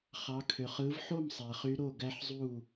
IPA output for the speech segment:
χɑ˩˧kʰø˩χ ɯ˩˧vħo˥˩m sˤæ˩χy˨˥ɾo˥˩ ɡæ˦˥ħzˤu˥˩

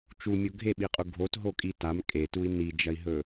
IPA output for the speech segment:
t͡ʃumʲo ɡʱeɓiqʼu ɡʱotɦokʼi tam kʼetui̯ nid͡ʒɐi̯ɦɵ

